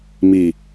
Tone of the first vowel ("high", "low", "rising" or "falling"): low